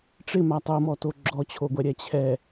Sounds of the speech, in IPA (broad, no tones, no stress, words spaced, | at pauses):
ʈ͡ʂɪma tˤomɔto ɡ͡ǁɔt͡ɕʰoɡʷɛɾʲɛ t͡ɕʰɛ